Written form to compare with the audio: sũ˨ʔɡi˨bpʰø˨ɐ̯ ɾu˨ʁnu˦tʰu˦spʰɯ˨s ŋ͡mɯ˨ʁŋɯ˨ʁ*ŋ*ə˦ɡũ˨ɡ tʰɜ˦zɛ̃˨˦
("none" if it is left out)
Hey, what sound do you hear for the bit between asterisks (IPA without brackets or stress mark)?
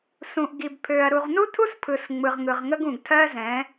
ŋ